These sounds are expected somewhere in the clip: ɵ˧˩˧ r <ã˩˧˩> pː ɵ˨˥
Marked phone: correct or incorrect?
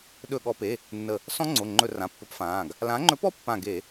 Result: correct